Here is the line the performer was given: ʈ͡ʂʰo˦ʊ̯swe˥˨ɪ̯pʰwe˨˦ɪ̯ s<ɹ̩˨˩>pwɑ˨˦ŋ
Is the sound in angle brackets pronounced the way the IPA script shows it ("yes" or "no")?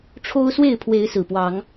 yes